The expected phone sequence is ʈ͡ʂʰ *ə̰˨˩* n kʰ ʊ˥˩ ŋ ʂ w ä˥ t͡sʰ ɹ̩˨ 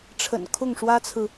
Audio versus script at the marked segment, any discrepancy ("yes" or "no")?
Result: no